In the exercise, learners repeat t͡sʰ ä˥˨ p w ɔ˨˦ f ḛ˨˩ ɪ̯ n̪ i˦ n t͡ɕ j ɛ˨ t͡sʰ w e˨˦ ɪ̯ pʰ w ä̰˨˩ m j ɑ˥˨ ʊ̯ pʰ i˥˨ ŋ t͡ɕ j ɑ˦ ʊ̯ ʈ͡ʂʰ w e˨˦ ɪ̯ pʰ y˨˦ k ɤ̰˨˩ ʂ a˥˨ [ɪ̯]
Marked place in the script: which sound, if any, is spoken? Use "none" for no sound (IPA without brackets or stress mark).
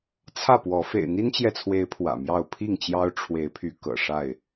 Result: ɪ̯